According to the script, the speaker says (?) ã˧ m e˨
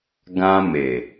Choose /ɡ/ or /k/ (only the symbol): ɡ